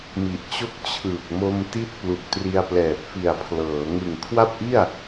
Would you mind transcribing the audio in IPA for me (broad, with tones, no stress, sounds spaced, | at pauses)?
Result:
m i˨˩ ʔ t͡ɕ o˥˩ k̚ t͡ɕʰ ɯː˨˩ k̚ m o˧ m t i˦˥ t̚ p l u˨˩ k̚ t r i˧ a̯ p l ɛː˨˩ p̚ f i˨˩ a̯ pʰ l ɤː˩˦ ŋ ɯ˨˩ ŋ kʰ w a˥˩ p̚ ʔ i˥˩ a̯